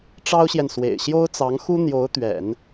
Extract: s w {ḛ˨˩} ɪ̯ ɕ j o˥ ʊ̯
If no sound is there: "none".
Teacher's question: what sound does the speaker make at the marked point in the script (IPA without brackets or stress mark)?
ḛ˨˩